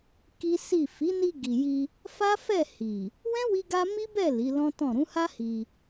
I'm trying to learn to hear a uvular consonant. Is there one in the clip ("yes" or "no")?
no